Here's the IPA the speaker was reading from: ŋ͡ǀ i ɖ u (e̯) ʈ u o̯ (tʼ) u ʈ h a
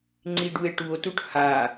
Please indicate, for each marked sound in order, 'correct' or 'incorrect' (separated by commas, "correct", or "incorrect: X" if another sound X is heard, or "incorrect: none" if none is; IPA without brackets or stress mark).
correct, incorrect: t